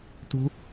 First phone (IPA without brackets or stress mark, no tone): t